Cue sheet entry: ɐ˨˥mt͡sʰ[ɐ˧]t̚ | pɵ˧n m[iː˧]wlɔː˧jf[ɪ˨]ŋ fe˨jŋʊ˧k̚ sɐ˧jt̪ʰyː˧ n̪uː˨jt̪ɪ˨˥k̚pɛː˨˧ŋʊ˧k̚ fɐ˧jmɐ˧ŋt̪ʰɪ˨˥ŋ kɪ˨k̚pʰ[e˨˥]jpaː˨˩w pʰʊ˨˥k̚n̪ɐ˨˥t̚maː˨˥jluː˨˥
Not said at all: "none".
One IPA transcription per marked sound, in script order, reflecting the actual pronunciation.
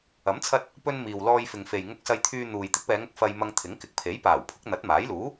ɐ˧, iː˨, ɪ˨, e˨˥

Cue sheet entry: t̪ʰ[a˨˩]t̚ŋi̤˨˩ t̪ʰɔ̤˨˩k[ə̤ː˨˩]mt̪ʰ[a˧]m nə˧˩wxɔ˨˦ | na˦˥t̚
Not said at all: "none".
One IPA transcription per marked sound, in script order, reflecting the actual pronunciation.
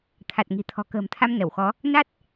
a˨˩, ə̤ː˨˩, a˧

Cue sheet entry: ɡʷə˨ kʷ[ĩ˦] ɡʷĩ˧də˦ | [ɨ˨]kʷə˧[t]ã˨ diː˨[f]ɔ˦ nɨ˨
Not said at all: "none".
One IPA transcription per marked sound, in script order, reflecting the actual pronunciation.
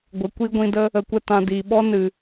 i˦, ə˨, t, ɓ

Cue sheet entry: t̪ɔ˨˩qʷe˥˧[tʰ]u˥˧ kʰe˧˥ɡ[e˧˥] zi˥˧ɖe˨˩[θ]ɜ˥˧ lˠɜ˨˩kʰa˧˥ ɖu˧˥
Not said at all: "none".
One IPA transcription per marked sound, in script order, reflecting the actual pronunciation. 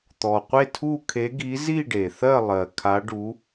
tʰ, i˧˥, θ

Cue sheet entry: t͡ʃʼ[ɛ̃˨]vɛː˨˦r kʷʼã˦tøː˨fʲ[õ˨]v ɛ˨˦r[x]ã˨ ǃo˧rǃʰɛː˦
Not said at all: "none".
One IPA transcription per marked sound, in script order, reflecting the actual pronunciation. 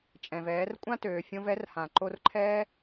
ɛ̃˨, õ˧, h

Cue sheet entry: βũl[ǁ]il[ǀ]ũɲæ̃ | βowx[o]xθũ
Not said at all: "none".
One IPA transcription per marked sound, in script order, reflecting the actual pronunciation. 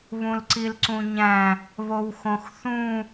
ǀ, ǀ, õ

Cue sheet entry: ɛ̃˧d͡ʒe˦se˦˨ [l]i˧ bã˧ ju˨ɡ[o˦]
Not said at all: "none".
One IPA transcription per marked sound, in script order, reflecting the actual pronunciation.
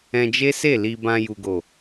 l, o˨

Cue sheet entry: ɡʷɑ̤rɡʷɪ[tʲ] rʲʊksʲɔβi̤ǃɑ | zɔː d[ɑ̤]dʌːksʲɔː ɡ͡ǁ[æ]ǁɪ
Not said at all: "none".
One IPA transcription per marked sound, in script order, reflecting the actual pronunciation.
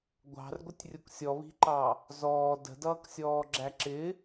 tʲ, ə̤, æ

